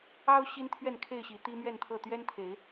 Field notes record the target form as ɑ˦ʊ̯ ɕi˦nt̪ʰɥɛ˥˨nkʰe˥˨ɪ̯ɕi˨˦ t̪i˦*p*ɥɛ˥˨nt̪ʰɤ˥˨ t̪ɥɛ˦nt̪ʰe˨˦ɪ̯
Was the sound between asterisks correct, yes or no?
no